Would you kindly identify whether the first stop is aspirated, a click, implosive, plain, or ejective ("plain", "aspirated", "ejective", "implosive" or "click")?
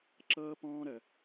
click